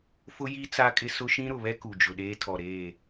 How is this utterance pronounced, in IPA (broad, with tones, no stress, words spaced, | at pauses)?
fʊ˦ji˦ t͡sa˦kʼɪ˦ sʊ˦ʃĩ˦ɾʊ˨βɛ˦ ku˨d͡ʒʊ˨ɗeː˦ tʰɔ˨ɾeː˦˨